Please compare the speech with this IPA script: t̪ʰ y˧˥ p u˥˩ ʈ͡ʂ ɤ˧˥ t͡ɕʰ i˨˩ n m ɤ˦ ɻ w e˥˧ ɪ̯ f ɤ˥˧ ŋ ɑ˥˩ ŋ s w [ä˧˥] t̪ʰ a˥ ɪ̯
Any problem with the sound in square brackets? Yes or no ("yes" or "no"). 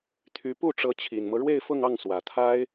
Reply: yes